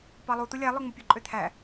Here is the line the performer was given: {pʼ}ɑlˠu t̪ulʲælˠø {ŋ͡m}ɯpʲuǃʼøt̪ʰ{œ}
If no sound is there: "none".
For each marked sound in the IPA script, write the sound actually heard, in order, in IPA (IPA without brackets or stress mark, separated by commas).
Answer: p, ŋ͡m, æ